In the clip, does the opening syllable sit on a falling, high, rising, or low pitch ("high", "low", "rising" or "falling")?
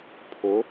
rising